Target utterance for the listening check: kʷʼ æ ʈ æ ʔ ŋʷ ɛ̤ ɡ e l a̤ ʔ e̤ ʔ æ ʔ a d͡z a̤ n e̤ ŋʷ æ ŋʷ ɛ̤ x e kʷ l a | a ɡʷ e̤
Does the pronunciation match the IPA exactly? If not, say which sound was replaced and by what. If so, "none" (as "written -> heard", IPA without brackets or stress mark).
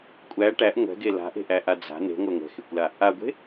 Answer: none